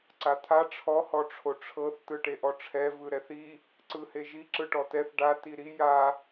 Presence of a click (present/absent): present